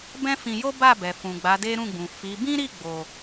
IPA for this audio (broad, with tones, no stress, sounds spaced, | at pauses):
b ɛ̃˦ f ĩ˧ j o˦ b a˦˨ b ɛ˨ f ũ˨ ɡ͡b a˨˦ d e˦ ɾ ũ˦˨ ɡ͡b ũ˨ f i˨˦ b ĩ˦ ɾ i˦˨ ɡ͡b o˨